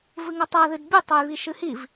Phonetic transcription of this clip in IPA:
v ɨ ŋ ɐ tˤ a ð ɨ d bʲ u tˤ o j β i ʃ ɨ h i v

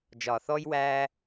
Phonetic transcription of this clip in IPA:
d͡ʒ ɒ˩ θ ɔ˧ j w æ˥

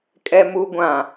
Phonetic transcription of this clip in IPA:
kʼ ɛ˦ m u˦ ɡʷ ã˨

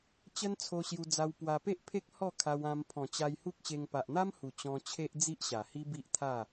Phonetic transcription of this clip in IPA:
t͡ɕ ə˦ n t͡sʰ o˧ ɕ j u˧ d͡z a˧ w p w a˧ p e˦ ʔ pʰ e˦ k̚ h ɔ˥˧ kʰ a˧ w ã˧ m pʰ ɔ̃˨˩ t͡ɕ a˧ j h u˦ k̚ ɕ e˧ ŋ p a˨ ʔ n̪ a˦ m h u˨˩ t͡ɕ ɔ̃˧ t͡ɕʰ e˦ ʔ d͡z i˦ ʔ ɕ a˨˩ h i˦ b i˦ ʔ t̪ʰ a˥˧

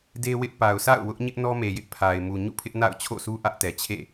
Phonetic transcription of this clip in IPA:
d e˦ w ɪ˦ ʔ p a˨ ʊ̯ sʰ a̰˦˨ ʊ̯ w ʊ˦ ʔ ɲ ɪ˦ ʔ n ɔ˦ m e˨ j ɪ˦ ʔ pʰ a˨ ɪ̯ m u˨ ɲ ṵ˦˨ pʰ ɪ˦ ʔ n a̰˦˨ ʊ̯ t͡ɕʰ o̰˦˨ sʰ u˦ ʔ ä˦ ʔ t ɛ˨ t͡ɕʰ ḛ˦˨

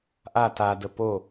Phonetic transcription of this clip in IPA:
ʔ a t a d ə p o

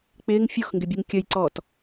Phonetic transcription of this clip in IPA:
k͡p ɪː ŋ fʲ o x ŋ ɡ ɪ bʲ u ŋ kʲ ə j ǀ ɔː t

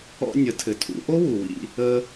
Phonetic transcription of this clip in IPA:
ɔ̰˧ nʲ ə˩˧ tʰ ɘ˩ tʰ ṵ˩˧ ʔ o˥ w u˩ w ḭ˧ | ə˧

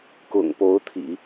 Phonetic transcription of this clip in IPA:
k ʊ̰˨˩ ŋ p o˧˥ ʊ̯ t̪ʰ ḭ˨˩˦

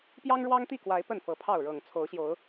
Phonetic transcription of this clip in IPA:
p j ɑ˦ ŋ ɻ w ɑ˦ ŋ t̪ i˥˨ k w a˨˦ ɪ̯ p ə˥˨ n f ɤ˨˦ pʰ ɑ˥˨ ʊ̯ ɻ ɤ˨˩ ŋ t͡sʰ o˨˦ ʊ̯ ɕ j o˨˦ ʊ̯

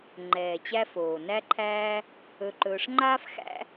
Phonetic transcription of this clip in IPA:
ŋ͡ǃ ɛː˩ t͡ɕ æ˦ f oː˩ n æ˦ ǃʰ æː˦ | ɵ˨ ǃ ɵː˨ ʂ ŋ͡ǃ aː˥ f x æ̰˦

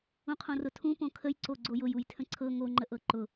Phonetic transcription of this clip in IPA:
ũ qʰ õ r ʊ tʰ ũ p õ kʰ ə j ǀ o ɡ͡ǀ o j ʊ j u j tʰ ə̃ ǀʰ ɤ ŋ o ŋ͡ǃ ə ʔ ɤ ǃ ʊ

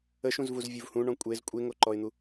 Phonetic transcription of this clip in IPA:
ə ʃ ũ z v u z vʲ u v h ũ ɳ ɔ̃ kʷʼ e z kʷʼ e ŋ o ǃ ɔ ɪ̯ n̪ u

